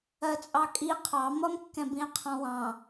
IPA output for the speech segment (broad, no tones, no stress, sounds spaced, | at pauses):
ɜ t͡sʼ ɑ kʼ i qʰ ɑ m ʌ m kː ɛ̃ b ĩ e̯ qʰ ɔ̃ w ɑ̃